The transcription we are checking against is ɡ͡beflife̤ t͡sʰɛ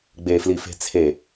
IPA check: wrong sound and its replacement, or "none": ɛ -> e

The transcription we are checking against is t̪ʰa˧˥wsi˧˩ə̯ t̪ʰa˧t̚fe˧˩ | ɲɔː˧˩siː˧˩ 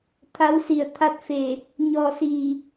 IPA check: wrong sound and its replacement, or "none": none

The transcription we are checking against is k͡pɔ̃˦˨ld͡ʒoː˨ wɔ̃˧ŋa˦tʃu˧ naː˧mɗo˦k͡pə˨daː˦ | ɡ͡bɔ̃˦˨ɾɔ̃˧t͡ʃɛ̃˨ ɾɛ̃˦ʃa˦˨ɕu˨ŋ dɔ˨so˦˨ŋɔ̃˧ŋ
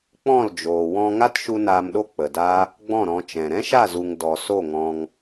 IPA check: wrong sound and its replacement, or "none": ɕ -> z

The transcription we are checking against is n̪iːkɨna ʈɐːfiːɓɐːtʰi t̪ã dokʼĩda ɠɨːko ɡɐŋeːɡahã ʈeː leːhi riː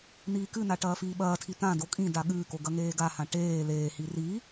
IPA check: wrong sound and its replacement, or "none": none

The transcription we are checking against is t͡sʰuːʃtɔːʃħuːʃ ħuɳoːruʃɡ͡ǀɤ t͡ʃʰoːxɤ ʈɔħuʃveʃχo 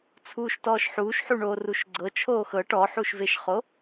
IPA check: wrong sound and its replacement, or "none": none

